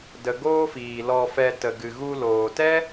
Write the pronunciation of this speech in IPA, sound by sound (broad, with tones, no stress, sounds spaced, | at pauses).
d ə˧ ɡ oː˦ f iː˨ l ɔ˧ f ɛ˧ t ə˨ ɡ ɨ˨ ɣ u˧ l oː˨ t ɛ˦